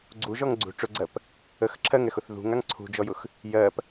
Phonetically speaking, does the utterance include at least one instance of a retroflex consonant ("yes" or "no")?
yes